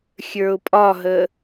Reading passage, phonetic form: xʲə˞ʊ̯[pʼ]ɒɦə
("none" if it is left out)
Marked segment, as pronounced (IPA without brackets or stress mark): pʼ